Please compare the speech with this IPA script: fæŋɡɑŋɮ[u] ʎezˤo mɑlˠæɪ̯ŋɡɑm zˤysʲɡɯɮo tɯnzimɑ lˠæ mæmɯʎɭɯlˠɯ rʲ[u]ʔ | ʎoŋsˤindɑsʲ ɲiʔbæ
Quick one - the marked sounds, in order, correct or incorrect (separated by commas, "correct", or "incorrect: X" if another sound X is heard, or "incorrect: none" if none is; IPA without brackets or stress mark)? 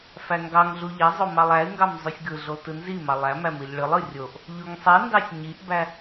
correct, incorrect: o